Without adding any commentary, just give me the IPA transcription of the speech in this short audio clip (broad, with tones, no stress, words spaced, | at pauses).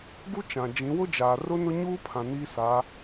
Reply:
ɡu˦t͡ʃã˨ d͡ʒĩ˨˦ wʊ˦d͡ʒaː˨ rʊ˦nʊ˦ ɲuː˦pʰã˨ niː˦sa˨˦